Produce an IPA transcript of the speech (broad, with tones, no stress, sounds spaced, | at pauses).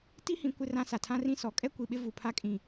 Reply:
t i˦ h ĩ˨˦ kʷ ɪ˦ r ã˦ s a˨ tʰ ã˦ r ĩ˦ s ɔ˨˦ kʼ ɛ˦ kʷ i˨ ɓ ɪ˦ v u˨ pʰ a˦ kʼ ĩ˨